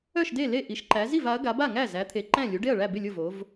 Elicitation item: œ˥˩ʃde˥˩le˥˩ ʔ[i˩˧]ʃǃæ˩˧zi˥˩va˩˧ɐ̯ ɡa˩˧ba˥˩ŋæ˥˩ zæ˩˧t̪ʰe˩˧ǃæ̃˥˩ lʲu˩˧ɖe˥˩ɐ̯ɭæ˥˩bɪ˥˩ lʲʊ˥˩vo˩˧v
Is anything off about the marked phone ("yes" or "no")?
no